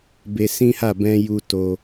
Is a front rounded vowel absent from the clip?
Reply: yes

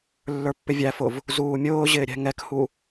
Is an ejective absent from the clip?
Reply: yes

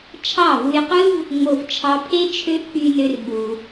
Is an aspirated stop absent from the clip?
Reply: no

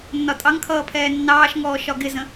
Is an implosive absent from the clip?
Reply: yes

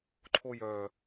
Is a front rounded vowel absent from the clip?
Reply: no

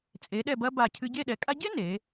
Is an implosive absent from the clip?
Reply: no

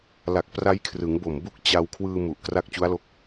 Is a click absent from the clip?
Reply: yes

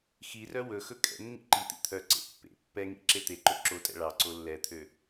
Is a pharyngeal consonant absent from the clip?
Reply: yes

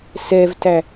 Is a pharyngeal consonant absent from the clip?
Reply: yes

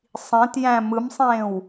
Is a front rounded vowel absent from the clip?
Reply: yes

